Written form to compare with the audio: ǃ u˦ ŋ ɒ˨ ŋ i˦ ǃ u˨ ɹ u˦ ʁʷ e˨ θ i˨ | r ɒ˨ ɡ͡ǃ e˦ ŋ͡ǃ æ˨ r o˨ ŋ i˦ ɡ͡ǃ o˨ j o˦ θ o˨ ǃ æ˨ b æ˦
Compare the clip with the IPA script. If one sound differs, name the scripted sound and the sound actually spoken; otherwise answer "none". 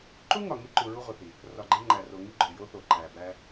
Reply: none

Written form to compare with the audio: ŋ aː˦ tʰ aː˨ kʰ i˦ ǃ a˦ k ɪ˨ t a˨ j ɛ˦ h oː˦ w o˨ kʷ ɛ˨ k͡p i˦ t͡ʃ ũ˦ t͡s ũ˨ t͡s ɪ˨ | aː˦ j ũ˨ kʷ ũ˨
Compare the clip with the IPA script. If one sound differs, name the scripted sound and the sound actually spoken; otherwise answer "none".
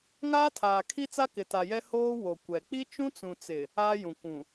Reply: ǃ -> t͡s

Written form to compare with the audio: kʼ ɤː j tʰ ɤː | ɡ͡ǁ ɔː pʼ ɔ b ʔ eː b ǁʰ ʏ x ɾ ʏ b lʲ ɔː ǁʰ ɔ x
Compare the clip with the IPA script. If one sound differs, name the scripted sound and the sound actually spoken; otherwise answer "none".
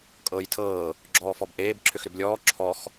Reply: pʼ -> f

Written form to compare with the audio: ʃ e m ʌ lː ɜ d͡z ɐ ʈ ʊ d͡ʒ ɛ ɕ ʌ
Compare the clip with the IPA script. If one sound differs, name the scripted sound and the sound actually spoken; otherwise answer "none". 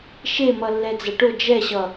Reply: ɜ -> ɛ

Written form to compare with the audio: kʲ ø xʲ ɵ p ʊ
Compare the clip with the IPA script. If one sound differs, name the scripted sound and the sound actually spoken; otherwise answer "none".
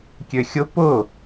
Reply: ɵ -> ʊ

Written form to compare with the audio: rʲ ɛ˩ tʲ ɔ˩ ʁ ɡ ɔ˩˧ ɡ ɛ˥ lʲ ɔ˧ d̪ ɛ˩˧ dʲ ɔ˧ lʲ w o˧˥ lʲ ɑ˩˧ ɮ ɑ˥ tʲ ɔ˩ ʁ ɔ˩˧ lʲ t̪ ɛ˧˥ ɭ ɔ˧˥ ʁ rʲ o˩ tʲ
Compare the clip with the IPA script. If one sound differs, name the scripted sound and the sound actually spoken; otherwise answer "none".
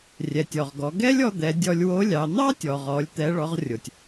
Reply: ɮ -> n̪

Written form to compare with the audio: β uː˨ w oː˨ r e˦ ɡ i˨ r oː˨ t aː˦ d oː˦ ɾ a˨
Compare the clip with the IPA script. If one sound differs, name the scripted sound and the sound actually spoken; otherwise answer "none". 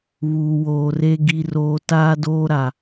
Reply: none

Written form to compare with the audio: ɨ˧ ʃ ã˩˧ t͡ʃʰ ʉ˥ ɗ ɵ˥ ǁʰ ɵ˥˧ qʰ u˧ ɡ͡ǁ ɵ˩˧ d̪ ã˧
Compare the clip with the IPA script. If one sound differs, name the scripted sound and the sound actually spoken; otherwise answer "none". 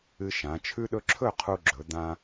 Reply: none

